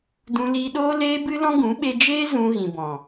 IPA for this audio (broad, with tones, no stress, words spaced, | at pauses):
dũ˧liː˧ɗoː˦ leː˦bɨ˦lɔ̃˦ɡũ˨˦ ɓe˧d͡ʒeː˦ zũ˧ ɣĩ˨bɔ̃˨